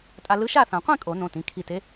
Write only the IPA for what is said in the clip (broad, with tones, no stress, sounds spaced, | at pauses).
tʼ a˧ l ɯ˧˥ ʃ a˥˨ θ ã˨˩˦ qʷ ĩ˥˨ kʼ o˨˩˦ n õ˩˧˩ t ĩ˩˧˩ kʰ i˧˩ t e˧˥